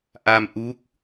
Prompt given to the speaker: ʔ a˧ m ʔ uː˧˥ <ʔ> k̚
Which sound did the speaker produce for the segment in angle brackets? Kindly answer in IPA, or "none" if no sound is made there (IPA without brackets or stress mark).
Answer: none